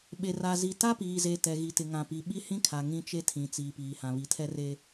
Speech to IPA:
ɓ e˨ r a˨ z i˨ t a˦ p iː˨ z eː˨ t ɛ˨ ɣ i˨ t ɪ˨ ŋ ã˨ p i˨ ɓ i˦ h ĩ˦ kʰ a˨ ŋ ĩ˦ t͡ʃ e˦ tʰ ĩ˨ t͡s iː˨ p iː˨ h ã˨ β i˨ tʰ ɛ˦ r e˦

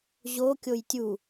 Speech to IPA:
ʑ o kʲ o j tʲ u

